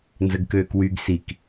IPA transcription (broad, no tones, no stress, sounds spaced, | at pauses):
n z ə ɡ k øː k w y ɡ s i k